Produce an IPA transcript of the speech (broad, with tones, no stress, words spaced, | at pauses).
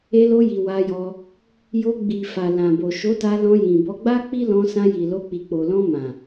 e˧lo˧ji˨ wa˧jɔ˧ | jo˧ɡ͡bi˨ fa˨lã˨bo˨ ʃo˨˦ta˧lɔ̃˧ jĩ˨bɔ˧ ɡ͡ba˦ k͡pi˦lɔ̃˧sã˧ ji˨lo˧ k͡pi˨k͡po˨lɔ̃˧mã˨